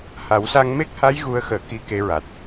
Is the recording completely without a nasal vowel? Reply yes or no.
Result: yes